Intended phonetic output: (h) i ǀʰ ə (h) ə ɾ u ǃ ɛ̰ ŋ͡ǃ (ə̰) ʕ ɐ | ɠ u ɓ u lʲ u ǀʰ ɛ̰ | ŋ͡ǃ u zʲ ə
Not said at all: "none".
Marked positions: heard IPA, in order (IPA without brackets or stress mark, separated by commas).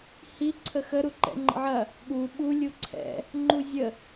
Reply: h, x, ə̰